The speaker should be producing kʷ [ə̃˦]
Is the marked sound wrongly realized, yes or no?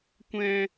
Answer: yes